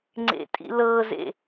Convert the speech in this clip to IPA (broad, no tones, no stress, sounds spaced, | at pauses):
ŋ͡ǀ ḛ tʼ ḭ l ɤ z ḛ